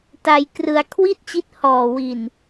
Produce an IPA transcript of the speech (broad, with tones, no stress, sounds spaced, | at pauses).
t a˧ j k r ɯ˧ a̯ kʰ w i˥˩ t̚ t͡ɕ i˦˥ t̚ h ɔː˨˩ w i˨˩ n